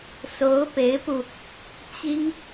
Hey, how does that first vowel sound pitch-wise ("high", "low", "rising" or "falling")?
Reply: rising